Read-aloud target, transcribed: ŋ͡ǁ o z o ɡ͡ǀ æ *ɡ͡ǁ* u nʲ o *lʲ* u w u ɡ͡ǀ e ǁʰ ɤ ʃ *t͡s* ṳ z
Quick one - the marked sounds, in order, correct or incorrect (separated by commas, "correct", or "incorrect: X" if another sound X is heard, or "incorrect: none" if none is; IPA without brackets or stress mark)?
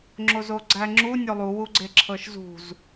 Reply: incorrect: ŋ͡ǁ, incorrect: lˠ, incorrect: z